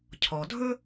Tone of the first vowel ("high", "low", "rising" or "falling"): low